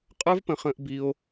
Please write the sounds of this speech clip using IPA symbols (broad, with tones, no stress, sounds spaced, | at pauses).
qʼ ə˞˦ v p ə̃˧ χ ə̃ː˧ ʔ b i˧ o̯